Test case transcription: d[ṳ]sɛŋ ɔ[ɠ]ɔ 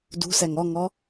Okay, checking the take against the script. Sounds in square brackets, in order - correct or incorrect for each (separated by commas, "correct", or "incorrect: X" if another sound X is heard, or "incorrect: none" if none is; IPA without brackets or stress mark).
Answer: correct, incorrect: ŋ